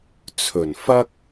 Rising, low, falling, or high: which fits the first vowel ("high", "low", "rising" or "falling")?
low